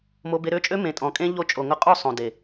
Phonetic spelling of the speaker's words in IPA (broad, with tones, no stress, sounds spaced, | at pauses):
m o˧ b e˧ ɾ ø˦ t͡ʃʼ ø˦ m ẽ˨ tʼ ɔ̃˨ kʼ ẽ˧ ʎ o˦˨ t͡ʃʼ o˨ ŋ ʊ˧ qʼ o˦˨ sˤ õ˨ d e˨